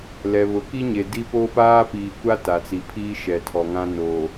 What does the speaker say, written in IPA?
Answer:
l ɛ˨ β ʊ˨ k i˦ ɲ e˨ d i˦ p o˦ p aː˦ p iː˨ kʷ a˦ t a˨ t͡s i˨ pʰ iː˦ ʃ ɛ˨ tʰ ɔ˨ ŋ ã˦ n oː˨

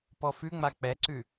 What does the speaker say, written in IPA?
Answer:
p ɔ f ʉ ŋ͡m a k͡p ɛ ǀ ʉ

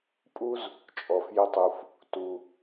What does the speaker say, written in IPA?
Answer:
pʼ u˥ z | t͡ʃʼ ɔ˩ f j ə˧ tˤ u˩ f | t u˩

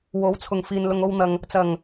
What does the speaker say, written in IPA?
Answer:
w o˨˥ w t͡sʰ ʊ˨˩ ŋ f iː˨ n l ʊ˧ ŋ o˥ w n̪ ɐ˧ ŋ | t͡s ɐ˨˩ ŋ

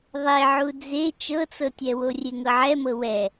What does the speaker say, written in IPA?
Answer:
ðˤ e ʕ u d͡z e t͡ʃ ɤ t͡s ɤ tʲ ɛ w o rʲ e ŋ ɤ ʕ ɛ m ɤ w ɛ

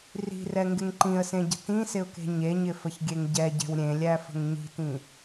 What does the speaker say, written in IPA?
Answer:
r i̤ r ɛ ŋ ɡ ɪ ŋ ǃ ĩ ə̯ s ẽ ɟ ə̤ t ĩ s ɪ ʊ̯ k e̤ ɲ e ɲ ɪ f ə ç ɡʲ e ŋ ɟ ɛ ɟ ɛ̤ w ɾʲ ẽ lʲ æ f ə̤ ŋ ɲ i̤ t ĩ

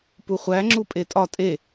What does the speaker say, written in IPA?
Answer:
p u χʷ æ ŋ͡ǁ u pʼ e tʼ ɒ tʼ e

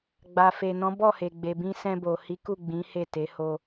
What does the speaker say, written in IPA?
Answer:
ɡ͡b a˨ f e˨ n ɔ̃˨˦ b ɔ˦˨ h e˨ ɡ͡b e˨ b ĩ˧ s ɛ̃˧ b o˨ h i˨˦ k u˦˨ ɡ͡b ĩ˨˦ h e˦˨ t e˨˦ h o˧

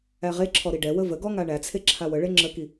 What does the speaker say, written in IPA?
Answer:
æ ʁ e ǁʰ ɔ ɾ i ɖ ɛ w ə v ə ɡ ɔ ŋ a ɳ æ t͡sʰ e ǁʰ a w ə ɭ e ŋ͡ǁ ə k i

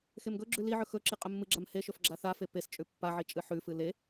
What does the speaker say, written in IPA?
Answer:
x e m ɡ ɵ ɡ͡ǁ ʉ l i ʕ ɵ x ɵ ǁ i qʼ ɵ mː ɨ ɡ͡ǁ a m h e ʃ ɵ f ɡ͡ǁ a θ a f e p e s t͡ʃʼ ʉ pː a ʕ i t͡ʃʼ ɨ ħ ʉ f ɨ l e

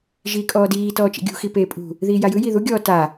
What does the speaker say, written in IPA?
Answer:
ʒ iː kʼ ɔː d iː t ɔː t͡ʃ ḭ ɡʲ ṳ x i p eː pʼ ṳ | ð iː j a j ɯ j i ð u ɡʲ ɔː t a

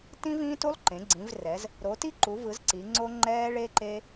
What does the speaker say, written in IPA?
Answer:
t ĩ˦ v ĩː˦ t u˦ lˠ ǃ ẽ˩˧ ɡ͡ǀ ĩ˩˧ v r ɛ˩˧ z | ɾ o˩˧ t i˦ ǃ u˩˧ v ɯ˩˧ z ǀ i˩˧ ŋ͡ǀ o˦ ŋ͡ǃ ɛː˦ ɭ e˦ ǃ e˦

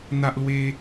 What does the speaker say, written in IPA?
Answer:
n̪ a˦ ʔ l w e˦

